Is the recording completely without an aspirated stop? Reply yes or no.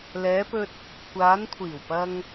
no